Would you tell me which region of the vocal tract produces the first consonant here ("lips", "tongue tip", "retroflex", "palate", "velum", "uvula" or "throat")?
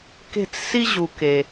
velum